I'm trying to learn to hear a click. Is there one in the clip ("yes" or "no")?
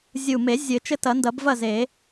no